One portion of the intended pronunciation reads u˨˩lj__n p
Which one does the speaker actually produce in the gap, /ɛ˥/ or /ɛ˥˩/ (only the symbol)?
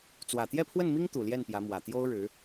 ɛ˥˩